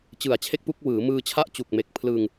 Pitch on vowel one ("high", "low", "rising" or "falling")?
low